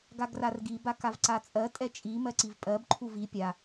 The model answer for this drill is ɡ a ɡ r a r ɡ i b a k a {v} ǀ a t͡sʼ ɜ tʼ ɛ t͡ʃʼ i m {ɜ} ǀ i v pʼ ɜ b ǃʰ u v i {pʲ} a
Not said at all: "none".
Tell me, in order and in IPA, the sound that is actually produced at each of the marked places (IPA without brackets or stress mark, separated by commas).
v, ɜ, pʲ